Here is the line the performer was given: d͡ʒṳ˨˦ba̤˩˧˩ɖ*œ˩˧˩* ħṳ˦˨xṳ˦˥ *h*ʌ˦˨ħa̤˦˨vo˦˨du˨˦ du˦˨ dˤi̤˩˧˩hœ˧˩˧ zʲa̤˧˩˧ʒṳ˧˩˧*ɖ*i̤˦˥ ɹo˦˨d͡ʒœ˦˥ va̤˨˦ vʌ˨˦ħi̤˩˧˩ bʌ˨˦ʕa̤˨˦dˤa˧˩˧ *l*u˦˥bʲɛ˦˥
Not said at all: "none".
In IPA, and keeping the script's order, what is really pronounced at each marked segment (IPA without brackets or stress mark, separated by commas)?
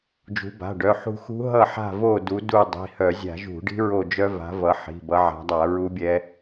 œ˩˧˩, ɦ, ɖ, ɹ